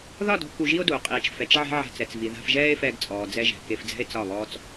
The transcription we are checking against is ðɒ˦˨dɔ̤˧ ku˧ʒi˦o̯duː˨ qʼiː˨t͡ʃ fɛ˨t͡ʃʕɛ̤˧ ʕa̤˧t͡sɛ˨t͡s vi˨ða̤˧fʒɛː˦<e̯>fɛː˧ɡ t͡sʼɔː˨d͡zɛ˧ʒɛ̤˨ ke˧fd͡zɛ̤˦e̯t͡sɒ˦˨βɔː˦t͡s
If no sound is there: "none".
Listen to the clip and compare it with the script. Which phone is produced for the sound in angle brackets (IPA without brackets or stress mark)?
e̯